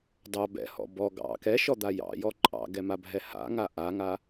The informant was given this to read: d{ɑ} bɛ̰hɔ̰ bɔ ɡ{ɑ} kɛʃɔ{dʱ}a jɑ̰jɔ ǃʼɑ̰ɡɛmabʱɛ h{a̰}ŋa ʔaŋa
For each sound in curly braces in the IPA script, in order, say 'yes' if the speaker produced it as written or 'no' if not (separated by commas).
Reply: yes, no, no, yes